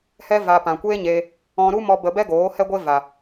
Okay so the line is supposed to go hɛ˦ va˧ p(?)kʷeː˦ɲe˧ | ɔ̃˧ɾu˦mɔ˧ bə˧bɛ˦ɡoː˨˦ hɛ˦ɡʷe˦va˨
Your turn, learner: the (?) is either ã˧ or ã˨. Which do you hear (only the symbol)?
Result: ã˨